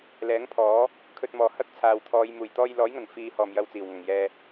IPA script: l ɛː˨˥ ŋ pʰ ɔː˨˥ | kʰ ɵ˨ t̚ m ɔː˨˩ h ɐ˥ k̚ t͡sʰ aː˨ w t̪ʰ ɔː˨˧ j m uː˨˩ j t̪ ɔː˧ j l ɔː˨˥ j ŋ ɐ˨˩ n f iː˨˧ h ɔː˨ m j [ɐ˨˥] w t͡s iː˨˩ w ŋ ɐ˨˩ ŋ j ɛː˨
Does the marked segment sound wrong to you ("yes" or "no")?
yes